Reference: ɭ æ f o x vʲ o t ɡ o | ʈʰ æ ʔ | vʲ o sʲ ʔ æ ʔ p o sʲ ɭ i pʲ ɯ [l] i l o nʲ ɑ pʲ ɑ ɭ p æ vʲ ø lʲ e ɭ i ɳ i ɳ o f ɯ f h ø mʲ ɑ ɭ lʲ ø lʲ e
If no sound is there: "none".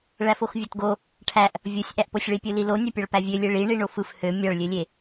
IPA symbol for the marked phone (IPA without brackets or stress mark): l